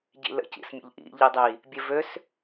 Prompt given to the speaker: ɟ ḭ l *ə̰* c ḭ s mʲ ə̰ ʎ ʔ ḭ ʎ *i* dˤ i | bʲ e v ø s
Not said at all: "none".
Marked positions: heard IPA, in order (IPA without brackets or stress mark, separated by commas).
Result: ə̰, i